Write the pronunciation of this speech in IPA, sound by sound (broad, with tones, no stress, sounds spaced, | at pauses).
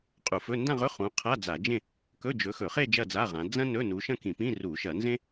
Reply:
qʼ u˧˩˧ f ɵ˧˥˧ n d ã˥˧ ʁ ɵ˧˥˧ χ ũ˨˦ qʰ a˧˥˧ d͡z a˧˩˧ d͡ʒ ẽ˥˧ | k ɵ˧˥˧ d͡ʒ ɵ˨˦ x ɵ˧˩˧ χ e˥˧ d͡ʒ ɐ˥˧ d͡z a˧˥˧ ʁ ã˨˦ d͡z ɐ̃˥ n ɵ˧˥˧ n u˨˦ ʃ ɐ̃˥˧ k ĩ˧˩˧ p ĩ˧˥˧ r u˧˩˧ ʃ ɐ˧˩˧ n z ẽ˥